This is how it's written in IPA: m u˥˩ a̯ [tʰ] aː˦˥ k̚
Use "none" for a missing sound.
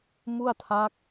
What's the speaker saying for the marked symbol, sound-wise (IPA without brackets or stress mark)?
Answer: tʰ